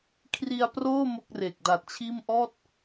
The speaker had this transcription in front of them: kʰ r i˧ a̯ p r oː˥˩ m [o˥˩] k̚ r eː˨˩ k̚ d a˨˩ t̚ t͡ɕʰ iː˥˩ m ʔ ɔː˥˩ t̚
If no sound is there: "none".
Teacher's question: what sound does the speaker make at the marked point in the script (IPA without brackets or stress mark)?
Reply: o˥˩